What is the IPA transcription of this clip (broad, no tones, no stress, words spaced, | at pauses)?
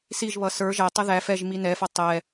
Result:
siʒβʌ sə˞ ʒætˤʌ ðæ fɛʒ minɛfʌ tˤɛ